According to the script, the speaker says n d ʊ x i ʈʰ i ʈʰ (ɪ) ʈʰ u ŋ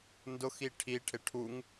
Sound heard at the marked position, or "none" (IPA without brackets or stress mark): ɪ